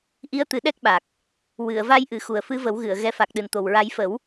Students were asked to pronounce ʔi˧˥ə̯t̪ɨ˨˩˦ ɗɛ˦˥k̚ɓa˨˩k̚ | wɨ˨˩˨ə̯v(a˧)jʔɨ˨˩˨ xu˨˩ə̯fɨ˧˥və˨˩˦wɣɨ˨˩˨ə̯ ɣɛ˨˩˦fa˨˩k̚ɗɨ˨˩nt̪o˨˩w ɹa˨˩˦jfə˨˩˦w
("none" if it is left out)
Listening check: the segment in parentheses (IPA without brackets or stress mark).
a˧